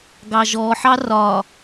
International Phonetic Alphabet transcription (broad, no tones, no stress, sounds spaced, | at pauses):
ɡ ɑ ʒ ɔ ħ ɑ r ɒ